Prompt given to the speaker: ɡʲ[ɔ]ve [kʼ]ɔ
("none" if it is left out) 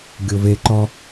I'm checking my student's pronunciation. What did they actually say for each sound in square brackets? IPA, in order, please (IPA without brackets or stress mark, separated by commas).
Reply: o, ǃ